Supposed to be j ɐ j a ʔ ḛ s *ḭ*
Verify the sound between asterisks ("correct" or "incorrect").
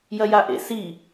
incorrect